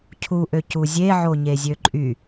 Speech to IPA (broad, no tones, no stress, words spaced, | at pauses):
cʰuʔø cuzʲe ʕoɲezʲøǃʼy